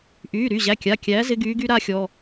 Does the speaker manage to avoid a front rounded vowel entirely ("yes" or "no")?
no